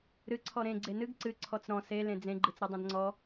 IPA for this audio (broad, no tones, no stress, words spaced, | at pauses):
ɾɨ ǀʰɔɾẽ ɡ͡ǀenɨɡ ǀɨ ǀʰɔt͡sɾɔ̃ se lẽd͡zẽ ɡ͡ǃɨt͡sɾɨdˤẽdŋ͡ǀɔ